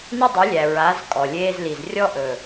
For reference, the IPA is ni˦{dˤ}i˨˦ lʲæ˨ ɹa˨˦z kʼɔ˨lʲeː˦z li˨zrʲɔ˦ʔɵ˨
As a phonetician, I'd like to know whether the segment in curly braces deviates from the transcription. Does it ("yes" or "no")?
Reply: no